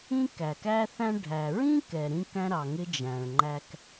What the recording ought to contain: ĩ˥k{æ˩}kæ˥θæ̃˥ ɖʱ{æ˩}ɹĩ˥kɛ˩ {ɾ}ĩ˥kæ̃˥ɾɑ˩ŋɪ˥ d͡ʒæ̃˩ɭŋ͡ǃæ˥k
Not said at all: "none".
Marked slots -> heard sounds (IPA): æ˩, æ˩, ɾ

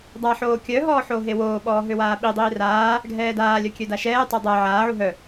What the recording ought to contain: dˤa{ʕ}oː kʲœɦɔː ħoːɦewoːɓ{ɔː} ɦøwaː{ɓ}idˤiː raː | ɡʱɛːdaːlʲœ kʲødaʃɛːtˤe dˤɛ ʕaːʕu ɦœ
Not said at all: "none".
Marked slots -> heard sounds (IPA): ħ, ɔː, ɓ

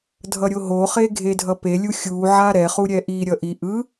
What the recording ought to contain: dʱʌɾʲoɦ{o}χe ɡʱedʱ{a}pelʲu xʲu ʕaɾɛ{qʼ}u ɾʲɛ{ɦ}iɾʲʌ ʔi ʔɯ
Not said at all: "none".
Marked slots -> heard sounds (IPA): o, ʌ, χ, ʔ

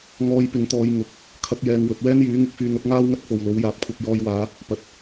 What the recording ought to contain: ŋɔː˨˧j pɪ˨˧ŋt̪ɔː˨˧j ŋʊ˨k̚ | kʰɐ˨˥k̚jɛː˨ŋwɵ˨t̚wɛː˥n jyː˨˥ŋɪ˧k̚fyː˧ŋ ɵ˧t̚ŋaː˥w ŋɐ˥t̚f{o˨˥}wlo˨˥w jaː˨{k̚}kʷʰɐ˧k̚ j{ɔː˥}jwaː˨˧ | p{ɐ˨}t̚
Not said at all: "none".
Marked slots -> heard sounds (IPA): o˨, p̚, ɔː˧, ɐ˨

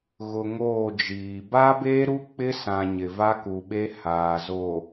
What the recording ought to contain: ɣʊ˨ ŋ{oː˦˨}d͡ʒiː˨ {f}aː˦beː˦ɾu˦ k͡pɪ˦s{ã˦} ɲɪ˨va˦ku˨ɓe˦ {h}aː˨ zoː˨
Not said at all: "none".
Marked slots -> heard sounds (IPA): oː˦˨, b, ã˨, h

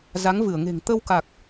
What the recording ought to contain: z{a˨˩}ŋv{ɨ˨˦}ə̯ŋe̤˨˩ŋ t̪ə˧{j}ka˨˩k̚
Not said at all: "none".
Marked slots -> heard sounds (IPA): a˨˦, ɨ˧˩, w

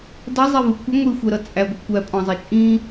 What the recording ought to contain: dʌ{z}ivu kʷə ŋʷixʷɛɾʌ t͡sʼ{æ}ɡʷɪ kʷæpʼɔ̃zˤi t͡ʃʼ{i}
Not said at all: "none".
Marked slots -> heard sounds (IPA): zˤ, æ, ĩ

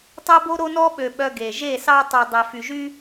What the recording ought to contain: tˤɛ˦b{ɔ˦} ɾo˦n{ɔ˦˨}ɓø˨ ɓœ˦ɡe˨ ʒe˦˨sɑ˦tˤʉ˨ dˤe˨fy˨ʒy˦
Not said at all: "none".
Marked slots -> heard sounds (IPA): o˦, ɔ˦

